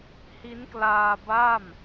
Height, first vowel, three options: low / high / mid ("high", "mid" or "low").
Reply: high